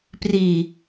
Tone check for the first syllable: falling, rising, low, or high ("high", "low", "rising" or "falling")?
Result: low